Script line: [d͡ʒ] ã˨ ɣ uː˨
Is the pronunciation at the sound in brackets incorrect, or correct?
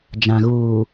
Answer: correct